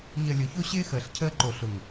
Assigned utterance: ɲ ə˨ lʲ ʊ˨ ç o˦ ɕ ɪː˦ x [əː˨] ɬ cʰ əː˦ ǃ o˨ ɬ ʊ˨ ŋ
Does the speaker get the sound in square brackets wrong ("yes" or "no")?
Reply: no